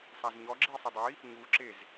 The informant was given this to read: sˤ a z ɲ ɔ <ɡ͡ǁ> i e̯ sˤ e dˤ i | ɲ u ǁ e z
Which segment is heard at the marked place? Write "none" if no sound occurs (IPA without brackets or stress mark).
ɡ͡ǁ